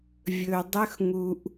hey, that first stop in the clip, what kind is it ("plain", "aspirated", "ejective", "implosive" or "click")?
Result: plain